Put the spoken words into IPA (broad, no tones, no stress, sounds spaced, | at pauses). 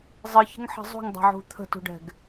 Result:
zˤ ɨ ç ə̤ ŋ ħ ə̤ zˤ ṳ ŋ dˤ ɛ̤ ʕ ṳ t̪ʰ ə̤ t ṳ ɖ ɛ̤ ɡ